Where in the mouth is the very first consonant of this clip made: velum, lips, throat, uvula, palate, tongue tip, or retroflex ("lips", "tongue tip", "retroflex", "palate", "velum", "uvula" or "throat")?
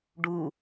retroflex